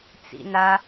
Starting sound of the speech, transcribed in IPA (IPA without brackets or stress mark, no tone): t͡s